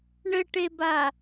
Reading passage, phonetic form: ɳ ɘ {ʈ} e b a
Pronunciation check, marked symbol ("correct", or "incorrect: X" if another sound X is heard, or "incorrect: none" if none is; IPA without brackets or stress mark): correct